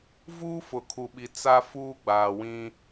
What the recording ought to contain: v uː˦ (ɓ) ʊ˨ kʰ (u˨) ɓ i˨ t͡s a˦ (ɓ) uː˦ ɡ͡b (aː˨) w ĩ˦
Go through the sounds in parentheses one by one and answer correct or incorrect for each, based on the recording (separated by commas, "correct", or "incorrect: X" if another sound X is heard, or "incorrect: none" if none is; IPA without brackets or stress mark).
incorrect: f, correct, incorrect: f, correct